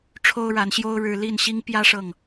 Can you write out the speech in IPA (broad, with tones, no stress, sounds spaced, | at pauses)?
ʈ͡ʂʰ o˦ ʊ̯ ɻ a˨˦ n ɕ j o˦ ʊ̯ ɻ ɻ̩˦ l i˥˨ n ɕ i˦ ŋ p j ä˦ ʂ ɤ˥˨ ŋ